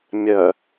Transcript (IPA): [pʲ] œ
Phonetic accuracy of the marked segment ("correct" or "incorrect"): incorrect